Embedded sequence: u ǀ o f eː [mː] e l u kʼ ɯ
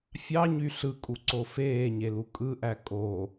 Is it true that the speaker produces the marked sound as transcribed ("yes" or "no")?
no